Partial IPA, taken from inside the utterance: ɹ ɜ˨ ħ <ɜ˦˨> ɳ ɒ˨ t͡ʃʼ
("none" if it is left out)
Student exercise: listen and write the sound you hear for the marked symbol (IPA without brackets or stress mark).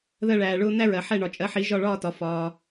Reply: ɛ˦˨